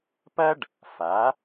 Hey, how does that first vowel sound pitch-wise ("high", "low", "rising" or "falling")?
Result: high